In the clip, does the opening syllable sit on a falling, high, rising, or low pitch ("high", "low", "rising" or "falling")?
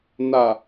low